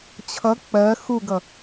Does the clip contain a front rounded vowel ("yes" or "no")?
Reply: no